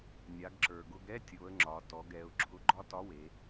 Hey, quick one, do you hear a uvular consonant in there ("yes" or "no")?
no